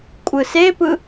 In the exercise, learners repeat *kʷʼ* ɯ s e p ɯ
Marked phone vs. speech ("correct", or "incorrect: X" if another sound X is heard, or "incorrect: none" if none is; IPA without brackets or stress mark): correct